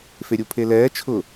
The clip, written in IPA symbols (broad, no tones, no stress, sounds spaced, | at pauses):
f e ɾʲ u pʰ e l ɛː t͡ʃʰ ʊ